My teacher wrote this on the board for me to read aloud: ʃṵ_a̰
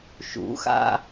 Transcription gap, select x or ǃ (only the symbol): x